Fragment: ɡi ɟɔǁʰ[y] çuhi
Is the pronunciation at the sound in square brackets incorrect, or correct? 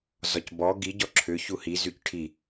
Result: incorrect